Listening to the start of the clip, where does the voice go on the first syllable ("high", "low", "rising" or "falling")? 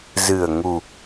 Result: low